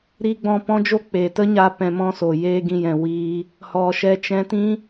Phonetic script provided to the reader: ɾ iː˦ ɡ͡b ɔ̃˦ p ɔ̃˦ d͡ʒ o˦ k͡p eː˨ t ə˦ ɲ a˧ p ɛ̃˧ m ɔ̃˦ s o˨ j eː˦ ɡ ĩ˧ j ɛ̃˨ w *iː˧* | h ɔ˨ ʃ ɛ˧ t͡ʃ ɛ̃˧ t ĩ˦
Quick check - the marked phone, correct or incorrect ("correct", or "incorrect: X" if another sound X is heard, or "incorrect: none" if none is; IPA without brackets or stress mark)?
correct